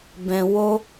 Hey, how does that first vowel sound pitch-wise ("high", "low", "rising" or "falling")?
low